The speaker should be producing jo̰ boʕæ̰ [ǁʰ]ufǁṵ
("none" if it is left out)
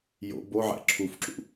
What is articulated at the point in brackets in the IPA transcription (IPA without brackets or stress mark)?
ǁʰ